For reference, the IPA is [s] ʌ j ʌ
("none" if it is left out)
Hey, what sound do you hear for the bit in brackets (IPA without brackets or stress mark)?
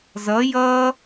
z